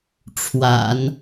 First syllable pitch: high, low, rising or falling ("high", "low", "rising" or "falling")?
low